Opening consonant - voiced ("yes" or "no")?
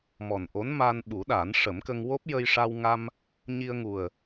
yes